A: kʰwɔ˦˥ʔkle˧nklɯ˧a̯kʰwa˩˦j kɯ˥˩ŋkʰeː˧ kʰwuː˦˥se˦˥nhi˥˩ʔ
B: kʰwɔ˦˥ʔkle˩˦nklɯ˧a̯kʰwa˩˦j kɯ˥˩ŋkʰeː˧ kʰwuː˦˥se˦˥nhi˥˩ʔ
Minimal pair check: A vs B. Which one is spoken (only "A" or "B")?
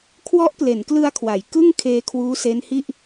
B